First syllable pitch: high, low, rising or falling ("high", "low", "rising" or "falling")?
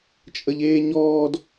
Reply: high